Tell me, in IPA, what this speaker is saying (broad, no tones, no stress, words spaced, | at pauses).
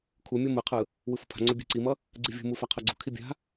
kʰumʲo mɯqʰɯ | wɯfṳpʰa̤ŋ͡ǀo bʲe̤ǀimʌ | ɡ͡ǀivʲṳmu faqʰʌɡ͡ǀṳkʰi bʲa̤